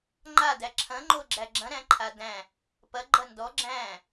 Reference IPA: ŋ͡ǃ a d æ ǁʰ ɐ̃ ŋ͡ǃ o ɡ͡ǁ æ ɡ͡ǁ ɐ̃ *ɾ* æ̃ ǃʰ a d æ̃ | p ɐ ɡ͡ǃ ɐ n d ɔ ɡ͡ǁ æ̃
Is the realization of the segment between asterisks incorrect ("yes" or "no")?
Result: no